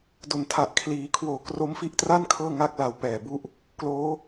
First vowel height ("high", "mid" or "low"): mid